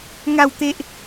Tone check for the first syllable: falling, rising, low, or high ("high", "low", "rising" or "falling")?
falling